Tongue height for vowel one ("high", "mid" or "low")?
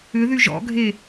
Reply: high